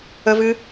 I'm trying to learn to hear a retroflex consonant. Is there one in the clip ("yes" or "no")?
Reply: no